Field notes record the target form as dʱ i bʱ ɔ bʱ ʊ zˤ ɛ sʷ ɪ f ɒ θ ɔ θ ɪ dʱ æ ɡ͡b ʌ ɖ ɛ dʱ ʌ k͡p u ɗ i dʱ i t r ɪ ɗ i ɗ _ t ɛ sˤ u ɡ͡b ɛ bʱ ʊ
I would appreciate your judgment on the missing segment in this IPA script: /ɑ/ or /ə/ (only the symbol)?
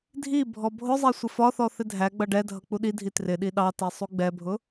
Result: ɑ